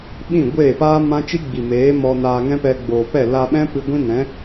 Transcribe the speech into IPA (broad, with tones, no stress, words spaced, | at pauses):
ɓĩ˦˨ɡʷeː˦˨paː˦ mã˦t͡ʃi˦ɡ͡bi˨meː˨˦ mɔ˧ naː˧ŋɛ̃˦pɛ˧ ɡ͡boː˨pɛ˦˨ la˧ɓɛ̃˦ pɨ˧ ɡʷĩ˦nɛ̃˨˦